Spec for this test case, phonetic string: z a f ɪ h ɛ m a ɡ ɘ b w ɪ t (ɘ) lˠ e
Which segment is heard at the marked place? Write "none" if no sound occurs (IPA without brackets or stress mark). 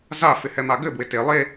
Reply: e